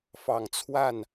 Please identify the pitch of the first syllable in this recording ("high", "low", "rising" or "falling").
low